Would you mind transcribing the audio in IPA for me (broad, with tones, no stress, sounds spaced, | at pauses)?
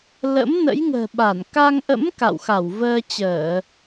l ə̰˧˥ m n ə̰˧˥ j ŋ ə̤ː˨˩ ɓ a˧˩ n k a˧ ŋ ʔ ə̰˧˥ m k a̰˧˨ w x a˧˩ w v əː˧ t͡ɕ əː˧˩˨